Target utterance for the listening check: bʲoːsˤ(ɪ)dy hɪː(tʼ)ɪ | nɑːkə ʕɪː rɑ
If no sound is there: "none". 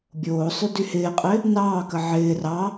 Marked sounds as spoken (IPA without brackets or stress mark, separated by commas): y, qʼ